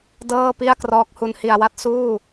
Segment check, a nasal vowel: absent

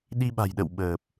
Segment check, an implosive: present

